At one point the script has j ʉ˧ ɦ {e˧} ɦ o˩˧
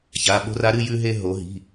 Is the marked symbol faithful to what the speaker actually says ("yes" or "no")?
yes